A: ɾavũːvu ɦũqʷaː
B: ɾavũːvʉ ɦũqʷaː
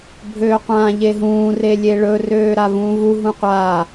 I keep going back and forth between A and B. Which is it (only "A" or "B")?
A